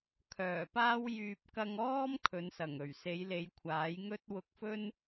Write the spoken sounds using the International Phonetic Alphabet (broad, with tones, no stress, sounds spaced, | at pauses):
kʰ œː˨˩ p aː˥ w j yː˨ p̚ k ɐ˧ ŋ ɔː˥ m kʰ ɵ˨˧ n s ɐ˨˩ ŋ ɵ˨˩ ɥ s e˨˧ j l e˨˧ j kʷʰ aː˨˥ j ŋ ɵ˥ t̚ w ʊ˧ k̚ f ɵ˥ n